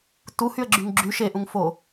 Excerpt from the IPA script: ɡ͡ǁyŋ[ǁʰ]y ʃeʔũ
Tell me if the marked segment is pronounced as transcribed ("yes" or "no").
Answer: no